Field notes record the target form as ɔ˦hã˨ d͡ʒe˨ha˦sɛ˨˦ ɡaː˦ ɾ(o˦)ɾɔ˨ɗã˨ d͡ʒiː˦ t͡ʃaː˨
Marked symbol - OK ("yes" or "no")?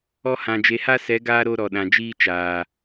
yes